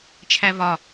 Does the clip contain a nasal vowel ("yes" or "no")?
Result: no